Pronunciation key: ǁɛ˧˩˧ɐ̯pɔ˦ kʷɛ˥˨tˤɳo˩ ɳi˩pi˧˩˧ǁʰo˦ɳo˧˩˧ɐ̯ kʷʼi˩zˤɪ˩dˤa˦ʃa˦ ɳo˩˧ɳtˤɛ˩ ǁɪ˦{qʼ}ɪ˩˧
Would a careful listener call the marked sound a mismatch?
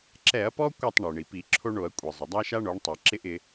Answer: yes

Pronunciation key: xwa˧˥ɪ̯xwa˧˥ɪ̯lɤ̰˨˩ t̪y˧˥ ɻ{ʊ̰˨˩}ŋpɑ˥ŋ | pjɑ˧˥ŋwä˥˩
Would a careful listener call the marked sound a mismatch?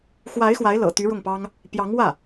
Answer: yes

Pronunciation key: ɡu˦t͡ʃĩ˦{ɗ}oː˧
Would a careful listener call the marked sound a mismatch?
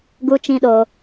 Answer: no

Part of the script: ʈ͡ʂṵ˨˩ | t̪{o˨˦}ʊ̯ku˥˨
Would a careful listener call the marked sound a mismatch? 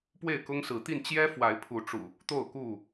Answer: yes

